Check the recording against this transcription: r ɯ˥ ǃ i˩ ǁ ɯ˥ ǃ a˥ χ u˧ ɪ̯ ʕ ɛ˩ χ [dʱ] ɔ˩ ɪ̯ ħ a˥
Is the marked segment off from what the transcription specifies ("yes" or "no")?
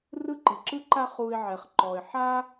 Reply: yes